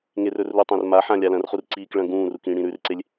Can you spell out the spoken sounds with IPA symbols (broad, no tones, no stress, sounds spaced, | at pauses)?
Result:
ŋ e r ɵ r l u tˤ ɐ̃ r m a ħ ã lʲ a l ɐ̃ r χ u r ǀ iː k ɭ ɐ̃ ɡ ũː r u k ĩ ɽ ĩ ɾ ʉ r ǀ e lʲ